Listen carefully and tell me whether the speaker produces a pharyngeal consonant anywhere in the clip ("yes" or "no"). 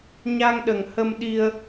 no